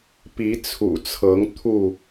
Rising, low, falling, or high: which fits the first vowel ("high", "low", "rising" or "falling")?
rising